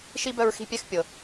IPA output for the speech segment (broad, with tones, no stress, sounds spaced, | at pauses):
ʃ i˥ b œ˦ ɹ x i̤˥ pʲ ɛ˥ x pʲ ɤ˨